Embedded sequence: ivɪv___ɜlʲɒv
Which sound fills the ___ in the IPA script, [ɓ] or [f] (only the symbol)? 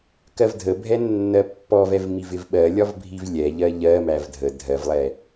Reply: ɓ